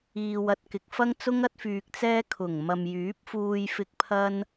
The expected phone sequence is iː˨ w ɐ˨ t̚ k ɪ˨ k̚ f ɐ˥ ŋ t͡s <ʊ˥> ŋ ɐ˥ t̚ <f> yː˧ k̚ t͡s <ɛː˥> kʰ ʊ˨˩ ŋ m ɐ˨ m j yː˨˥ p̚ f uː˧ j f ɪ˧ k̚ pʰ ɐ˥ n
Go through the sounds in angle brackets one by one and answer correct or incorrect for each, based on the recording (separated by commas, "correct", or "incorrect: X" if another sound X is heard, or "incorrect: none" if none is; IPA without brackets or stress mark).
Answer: correct, correct, correct